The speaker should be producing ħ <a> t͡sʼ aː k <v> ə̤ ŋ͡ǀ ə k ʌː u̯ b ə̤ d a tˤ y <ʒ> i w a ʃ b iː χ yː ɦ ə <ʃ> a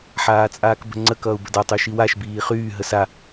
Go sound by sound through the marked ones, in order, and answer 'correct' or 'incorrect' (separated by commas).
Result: incorrect, incorrect, incorrect, incorrect